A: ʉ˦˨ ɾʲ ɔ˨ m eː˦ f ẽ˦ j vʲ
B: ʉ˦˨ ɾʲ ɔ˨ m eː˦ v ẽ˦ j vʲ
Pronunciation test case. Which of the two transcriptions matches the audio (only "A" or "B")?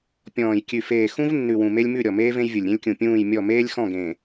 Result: B